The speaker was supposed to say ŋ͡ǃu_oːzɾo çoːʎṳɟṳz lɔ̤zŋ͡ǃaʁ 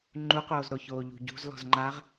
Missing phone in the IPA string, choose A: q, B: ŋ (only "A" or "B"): A